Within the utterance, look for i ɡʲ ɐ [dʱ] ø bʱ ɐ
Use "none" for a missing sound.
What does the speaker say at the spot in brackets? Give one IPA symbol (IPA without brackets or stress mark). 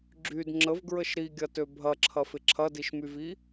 t